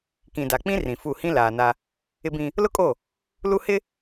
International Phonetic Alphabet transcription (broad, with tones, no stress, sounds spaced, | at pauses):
k ĩ˨ d a˨ k͡p ĩ˦ r ĩ˨ f u˦˨ h ĩ˦ l aː˨ n a˦ | ɪ˦ b ĩ˦ | l ʊ˦ kʼ o˦˨ | l u˦ h ɪ˦